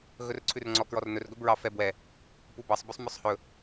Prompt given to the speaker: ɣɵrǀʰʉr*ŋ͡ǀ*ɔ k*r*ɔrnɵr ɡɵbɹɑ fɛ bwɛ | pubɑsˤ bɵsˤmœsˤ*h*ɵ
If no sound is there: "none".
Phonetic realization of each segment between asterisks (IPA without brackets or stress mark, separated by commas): ŋ͡ǀ, ɹ, h